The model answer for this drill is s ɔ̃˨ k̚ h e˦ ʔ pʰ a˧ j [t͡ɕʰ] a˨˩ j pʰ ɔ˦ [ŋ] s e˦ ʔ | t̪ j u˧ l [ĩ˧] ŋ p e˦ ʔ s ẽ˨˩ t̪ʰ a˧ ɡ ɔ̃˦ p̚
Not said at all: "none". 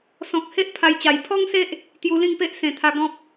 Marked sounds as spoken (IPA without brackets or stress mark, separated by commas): t͡ɕ, ŋ, ĩ˥˧